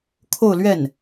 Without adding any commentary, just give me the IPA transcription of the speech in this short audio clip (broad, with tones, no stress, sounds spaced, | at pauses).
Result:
kʰ o˥˧ ʊ̯ l ɥ ɛ˥˩ n